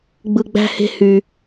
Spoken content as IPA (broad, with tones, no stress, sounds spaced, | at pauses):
ɡ͡b ɯ˦ ɡ͡b æ̤˥ h e̤˥ h y˦